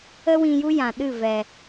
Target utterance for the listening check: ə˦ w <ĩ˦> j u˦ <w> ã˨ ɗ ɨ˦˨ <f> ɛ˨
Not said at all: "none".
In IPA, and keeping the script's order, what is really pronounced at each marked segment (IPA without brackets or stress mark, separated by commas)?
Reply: ĩ˧, j, v